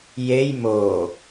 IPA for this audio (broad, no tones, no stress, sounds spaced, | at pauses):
j e j m o